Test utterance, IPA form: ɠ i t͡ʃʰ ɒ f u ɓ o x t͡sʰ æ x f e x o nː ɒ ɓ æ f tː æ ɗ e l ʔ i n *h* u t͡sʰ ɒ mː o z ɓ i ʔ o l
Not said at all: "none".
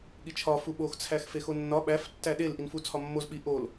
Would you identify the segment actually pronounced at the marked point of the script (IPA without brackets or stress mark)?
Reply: f